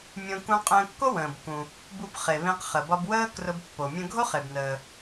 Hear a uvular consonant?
yes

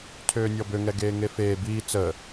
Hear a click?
no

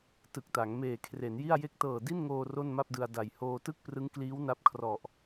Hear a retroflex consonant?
no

